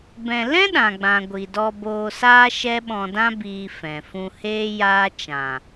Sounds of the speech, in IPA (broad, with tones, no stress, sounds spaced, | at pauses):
b ɛ̃˧ l ɛ̃˦ ɗ ã˨ ɡ͡b ã˨ ɡʷ i˨ d ɔ˧ b oː˧ s aː˦ ʃ ɛ˦ ɓ ɔ̃˧ d ã˦ b iː˧ f ɛ̃˨ f ũ˧ h eː˦ j aː˦ t͡ʃ ã˨